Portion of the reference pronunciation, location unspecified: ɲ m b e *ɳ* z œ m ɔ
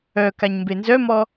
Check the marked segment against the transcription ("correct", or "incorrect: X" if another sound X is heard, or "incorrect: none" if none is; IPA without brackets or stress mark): incorrect: n